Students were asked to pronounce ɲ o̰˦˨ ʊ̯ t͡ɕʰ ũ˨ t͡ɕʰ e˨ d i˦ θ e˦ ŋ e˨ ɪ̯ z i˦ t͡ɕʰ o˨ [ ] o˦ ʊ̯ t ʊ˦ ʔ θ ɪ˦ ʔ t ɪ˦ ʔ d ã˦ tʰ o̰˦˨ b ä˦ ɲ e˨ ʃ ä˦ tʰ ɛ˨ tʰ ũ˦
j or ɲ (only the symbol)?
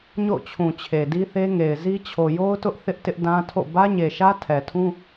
j